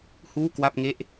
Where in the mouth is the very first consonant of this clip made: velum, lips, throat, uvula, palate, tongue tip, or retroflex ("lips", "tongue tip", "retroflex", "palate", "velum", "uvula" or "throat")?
throat